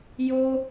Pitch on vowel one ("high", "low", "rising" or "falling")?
high